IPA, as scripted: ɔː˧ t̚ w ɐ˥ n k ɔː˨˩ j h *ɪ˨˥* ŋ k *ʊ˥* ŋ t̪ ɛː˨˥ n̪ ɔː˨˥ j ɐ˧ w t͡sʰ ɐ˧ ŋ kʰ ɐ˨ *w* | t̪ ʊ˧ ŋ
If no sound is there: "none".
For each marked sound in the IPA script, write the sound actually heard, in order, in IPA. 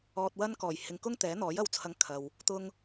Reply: ɪ˨, ʊ˥, w

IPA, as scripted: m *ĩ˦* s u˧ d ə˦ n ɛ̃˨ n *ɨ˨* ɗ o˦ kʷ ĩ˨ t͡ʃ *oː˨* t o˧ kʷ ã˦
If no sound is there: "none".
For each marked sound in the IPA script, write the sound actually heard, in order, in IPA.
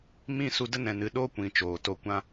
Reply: ĩ˦˨, ɨ˨, oː˨

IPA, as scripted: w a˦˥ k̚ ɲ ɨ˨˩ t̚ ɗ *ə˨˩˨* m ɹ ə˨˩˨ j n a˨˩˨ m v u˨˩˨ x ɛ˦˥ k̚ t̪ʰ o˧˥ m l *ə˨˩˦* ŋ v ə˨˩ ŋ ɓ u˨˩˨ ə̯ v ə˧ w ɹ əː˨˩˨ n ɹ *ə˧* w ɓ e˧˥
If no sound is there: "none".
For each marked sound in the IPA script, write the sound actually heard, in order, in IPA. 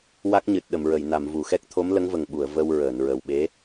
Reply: ə˨˩˨, ə˧˥, ə˨˩

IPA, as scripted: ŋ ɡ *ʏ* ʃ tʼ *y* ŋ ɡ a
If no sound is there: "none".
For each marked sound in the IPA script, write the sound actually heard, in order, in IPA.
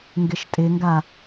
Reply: ɪ, ɪ

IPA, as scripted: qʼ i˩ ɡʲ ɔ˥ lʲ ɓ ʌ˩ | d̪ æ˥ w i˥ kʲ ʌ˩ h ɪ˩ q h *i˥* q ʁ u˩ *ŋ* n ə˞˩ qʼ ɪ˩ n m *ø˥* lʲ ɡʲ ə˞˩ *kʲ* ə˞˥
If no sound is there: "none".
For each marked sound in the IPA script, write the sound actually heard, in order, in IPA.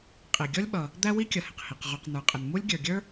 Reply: i˩, q, u˥, ɡʲ

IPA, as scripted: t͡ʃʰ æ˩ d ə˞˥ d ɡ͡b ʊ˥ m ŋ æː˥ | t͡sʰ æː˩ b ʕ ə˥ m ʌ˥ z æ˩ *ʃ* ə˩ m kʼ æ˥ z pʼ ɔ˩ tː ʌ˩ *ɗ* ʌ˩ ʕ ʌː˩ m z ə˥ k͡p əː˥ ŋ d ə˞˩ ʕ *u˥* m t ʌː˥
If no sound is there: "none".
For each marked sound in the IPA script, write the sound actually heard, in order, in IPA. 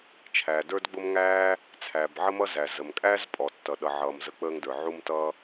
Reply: z, ɗ, u˥

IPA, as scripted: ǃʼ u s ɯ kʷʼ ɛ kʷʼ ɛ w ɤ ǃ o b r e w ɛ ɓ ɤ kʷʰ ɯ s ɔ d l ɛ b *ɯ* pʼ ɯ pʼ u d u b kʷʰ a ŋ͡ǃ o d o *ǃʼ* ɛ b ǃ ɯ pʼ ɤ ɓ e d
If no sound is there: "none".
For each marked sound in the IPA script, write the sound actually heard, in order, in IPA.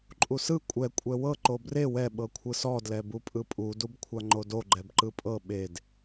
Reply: u, ɡ͡ǃ

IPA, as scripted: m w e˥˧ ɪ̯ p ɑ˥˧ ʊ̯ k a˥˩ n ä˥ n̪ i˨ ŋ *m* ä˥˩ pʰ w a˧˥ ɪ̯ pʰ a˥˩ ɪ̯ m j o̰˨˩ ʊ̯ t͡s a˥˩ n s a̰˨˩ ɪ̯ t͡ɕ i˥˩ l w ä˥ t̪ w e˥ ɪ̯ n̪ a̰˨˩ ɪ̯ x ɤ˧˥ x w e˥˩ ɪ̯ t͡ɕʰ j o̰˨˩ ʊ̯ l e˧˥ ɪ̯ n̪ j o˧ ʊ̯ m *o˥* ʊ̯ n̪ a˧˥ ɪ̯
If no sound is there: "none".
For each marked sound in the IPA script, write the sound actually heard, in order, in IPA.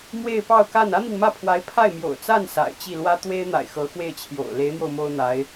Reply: m, o˥

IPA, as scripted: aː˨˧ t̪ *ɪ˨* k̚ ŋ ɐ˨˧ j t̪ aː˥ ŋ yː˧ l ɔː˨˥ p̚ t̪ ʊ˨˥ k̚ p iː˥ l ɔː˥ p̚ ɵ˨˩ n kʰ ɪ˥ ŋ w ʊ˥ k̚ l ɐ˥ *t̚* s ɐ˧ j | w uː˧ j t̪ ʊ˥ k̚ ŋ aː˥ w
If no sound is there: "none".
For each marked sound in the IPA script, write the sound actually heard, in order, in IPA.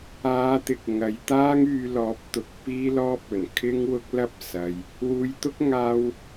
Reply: ɪ˨, p̚

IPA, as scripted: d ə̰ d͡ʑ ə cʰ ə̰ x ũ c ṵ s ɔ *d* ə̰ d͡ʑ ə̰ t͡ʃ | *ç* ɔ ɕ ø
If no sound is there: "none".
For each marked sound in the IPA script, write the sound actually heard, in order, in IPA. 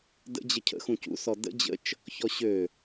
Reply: d, ç

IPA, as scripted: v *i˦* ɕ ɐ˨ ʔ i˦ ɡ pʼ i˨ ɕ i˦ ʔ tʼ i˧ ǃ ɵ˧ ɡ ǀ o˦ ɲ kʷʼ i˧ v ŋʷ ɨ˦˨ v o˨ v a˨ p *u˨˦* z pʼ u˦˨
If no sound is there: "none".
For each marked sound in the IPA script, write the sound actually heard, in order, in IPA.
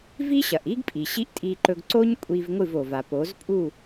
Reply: i˦, o˨˦

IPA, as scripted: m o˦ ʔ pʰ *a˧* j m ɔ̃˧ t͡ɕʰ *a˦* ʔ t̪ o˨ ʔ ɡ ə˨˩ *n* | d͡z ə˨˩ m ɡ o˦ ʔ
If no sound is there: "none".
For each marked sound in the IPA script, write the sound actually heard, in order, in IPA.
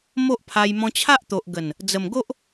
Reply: a˧, a˦, n

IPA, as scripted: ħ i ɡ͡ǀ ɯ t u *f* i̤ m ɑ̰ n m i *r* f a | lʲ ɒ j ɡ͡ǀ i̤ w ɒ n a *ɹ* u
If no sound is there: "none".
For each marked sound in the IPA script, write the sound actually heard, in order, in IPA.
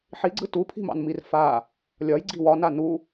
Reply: pʰ, r, n

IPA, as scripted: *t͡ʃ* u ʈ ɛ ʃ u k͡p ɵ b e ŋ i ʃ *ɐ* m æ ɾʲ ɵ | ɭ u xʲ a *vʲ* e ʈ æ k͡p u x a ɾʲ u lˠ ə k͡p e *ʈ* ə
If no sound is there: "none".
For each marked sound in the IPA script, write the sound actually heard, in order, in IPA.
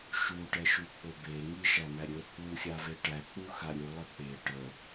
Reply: ʃ, æ, v, ʈ

